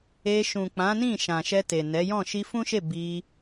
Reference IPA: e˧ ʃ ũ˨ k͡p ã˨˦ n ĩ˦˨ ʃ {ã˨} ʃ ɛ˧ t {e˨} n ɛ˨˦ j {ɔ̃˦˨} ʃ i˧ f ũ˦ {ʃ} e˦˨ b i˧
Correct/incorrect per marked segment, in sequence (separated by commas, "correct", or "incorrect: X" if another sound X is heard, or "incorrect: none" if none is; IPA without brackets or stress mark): correct, correct, correct, correct